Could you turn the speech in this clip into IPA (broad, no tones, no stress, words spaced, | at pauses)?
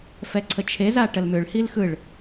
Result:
fɛǀʰət͡ʃʰeza ʈəlmʏɭhil xɯɭ